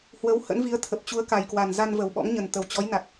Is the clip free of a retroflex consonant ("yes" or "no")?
yes